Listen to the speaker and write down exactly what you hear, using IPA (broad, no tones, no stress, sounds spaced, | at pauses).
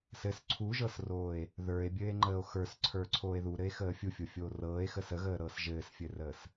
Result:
s ɘ s ǀʰ u ʒ ɤ s r oː e̯ | ð ə˞ e̯ bʲ ɘː e̯ ŋ͡ǃ əː o̯ x ə˞ s ǀʰ ə˞ ǀʰ oː e̯ ð u ɾ ɘ e̯ x əː fʲ u fʲ o fʲ oː r ɤː e̯ x ə s ə ɣ əː ɾ ɤː s ʒ ɘː s fʲ ɘ r əː s